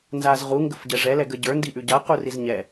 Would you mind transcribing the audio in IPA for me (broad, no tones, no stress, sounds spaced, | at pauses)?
n z a z ʁ u ŋ ɡ ə f ɟ ɛ ʐ ɛ l ɛ ɡ ə ɟ ə˞ n d i ʔ ʉ ɟ a q u r i z ɲ ɛ